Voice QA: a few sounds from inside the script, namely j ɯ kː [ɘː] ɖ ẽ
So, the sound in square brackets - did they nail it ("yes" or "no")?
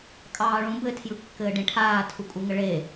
yes